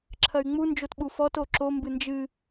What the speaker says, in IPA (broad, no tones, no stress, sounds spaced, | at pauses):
ǁʰ ɐ y̯ ŋ͡m u n d͡ʒ o t ɓ u f ɔ t o ǁ o m b ɨ n d͡ʒ ɨ